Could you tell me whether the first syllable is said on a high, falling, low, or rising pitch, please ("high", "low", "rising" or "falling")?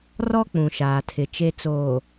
high